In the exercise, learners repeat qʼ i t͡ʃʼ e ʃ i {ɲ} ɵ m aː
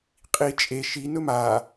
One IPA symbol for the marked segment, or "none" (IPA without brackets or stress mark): n